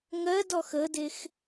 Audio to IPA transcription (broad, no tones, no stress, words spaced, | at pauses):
ŋɜdɔx ədex